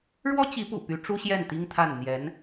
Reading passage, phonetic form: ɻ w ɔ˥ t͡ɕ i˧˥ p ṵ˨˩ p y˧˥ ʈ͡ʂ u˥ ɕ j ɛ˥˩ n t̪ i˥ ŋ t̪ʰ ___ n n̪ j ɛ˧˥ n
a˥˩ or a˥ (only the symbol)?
a˥˩